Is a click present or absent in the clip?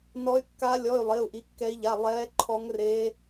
present